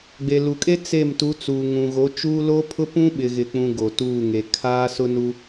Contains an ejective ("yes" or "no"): yes